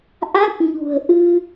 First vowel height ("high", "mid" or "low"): low